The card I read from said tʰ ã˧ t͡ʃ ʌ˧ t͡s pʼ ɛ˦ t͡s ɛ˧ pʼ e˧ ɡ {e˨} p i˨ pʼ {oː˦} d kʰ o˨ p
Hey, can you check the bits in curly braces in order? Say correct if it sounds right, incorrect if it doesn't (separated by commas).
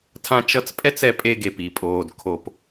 correct, incorrect